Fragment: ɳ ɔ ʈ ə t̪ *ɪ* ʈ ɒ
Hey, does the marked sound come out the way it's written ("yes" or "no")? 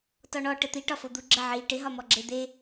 no